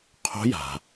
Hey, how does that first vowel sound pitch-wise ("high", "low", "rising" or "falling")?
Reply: rising